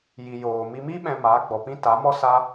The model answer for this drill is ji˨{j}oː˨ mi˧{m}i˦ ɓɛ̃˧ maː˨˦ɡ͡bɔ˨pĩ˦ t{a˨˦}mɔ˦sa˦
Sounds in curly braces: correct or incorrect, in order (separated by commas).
correct, correct, correct